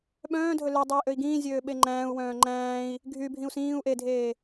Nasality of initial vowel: nasal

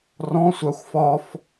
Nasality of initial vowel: nasal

